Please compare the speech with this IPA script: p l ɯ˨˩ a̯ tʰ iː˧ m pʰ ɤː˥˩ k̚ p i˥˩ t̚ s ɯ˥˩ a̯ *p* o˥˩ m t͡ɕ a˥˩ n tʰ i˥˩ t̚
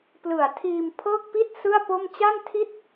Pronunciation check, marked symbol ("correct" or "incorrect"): correct